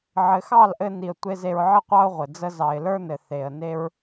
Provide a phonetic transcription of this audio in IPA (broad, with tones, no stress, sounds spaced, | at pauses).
ʕ ɘ˨ x ɑ˦˨ l ʔ ɘ˧ n i˨ ə̯ tʷ e˧ z e˧ ɹ ʕ ɘ˦ qʷ ɑ˦ ʊ̯ ʁʷ ɘ˨ d͡z ə˧ z ɑ˨ ɪ̯ l ə˞˦ n ɘ˨ θ e˨ ə̯ n e˦ ɹ